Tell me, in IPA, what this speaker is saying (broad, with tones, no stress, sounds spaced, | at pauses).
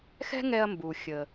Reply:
x ɛ̤˥ ŋ ɛ˧ ɐ̯ m b u˩ xʲ ə˩